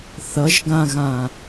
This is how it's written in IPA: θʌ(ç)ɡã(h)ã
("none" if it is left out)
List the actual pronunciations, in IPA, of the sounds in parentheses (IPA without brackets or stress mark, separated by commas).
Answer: ʒ, ɣ